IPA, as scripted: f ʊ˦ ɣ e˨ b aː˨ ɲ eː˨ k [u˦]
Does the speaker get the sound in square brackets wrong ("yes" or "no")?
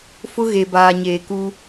no